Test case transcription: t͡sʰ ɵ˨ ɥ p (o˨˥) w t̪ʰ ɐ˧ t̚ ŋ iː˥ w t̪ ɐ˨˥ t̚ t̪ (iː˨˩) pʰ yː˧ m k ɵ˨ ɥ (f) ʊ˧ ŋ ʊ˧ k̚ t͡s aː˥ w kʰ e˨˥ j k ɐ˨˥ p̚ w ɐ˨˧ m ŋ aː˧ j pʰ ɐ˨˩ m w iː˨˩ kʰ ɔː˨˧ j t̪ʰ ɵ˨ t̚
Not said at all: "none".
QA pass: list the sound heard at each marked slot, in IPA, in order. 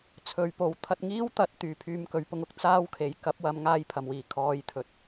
o˨˥, yː˨˩, p

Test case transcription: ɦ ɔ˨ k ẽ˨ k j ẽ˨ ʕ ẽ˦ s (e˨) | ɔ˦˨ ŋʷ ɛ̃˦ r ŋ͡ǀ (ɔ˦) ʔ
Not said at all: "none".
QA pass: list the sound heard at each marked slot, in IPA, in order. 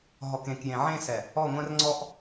ɛ˨, ɔ˦

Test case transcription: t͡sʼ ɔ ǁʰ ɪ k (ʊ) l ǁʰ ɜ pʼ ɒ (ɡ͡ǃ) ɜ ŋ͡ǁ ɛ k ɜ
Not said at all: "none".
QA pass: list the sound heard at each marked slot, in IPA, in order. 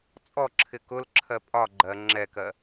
ʊ, ɡ͡ǃ

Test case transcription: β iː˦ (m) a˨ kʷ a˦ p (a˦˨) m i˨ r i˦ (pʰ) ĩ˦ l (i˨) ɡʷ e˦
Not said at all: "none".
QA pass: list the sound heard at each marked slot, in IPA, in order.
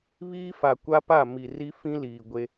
f, a˦˨, f, iː˨

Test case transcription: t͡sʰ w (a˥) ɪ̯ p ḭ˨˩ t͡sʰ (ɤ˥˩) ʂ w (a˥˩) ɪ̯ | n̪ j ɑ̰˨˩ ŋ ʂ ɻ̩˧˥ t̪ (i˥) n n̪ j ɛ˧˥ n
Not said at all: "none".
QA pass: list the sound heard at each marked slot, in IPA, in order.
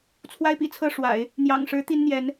a˥, ɤ˥˩, a̰˨˩˦, i˥

